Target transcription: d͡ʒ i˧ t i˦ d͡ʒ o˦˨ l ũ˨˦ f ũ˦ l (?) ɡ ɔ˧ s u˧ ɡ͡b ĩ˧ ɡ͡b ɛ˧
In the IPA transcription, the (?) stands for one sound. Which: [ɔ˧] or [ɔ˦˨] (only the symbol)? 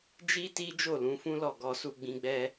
ɔ˦˨